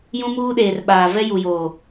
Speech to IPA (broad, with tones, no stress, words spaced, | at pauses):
jũ˦muː˦ɗeː˨rɓaː˨ vɛ˦ju˨joː˨